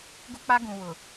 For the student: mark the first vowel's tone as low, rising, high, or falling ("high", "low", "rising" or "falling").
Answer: high